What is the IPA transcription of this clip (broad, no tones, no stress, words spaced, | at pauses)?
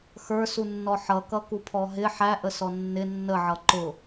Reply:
xə˞sunːɔ ħʌkʌkupʰɔ ɦɪ ħæʔəsɔ nːɪ nːəʕʌ ǃʊ